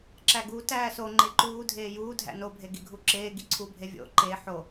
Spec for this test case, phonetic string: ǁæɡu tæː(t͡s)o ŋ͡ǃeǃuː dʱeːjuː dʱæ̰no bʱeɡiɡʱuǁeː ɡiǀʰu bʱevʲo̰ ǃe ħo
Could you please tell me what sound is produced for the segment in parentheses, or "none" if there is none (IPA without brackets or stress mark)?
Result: s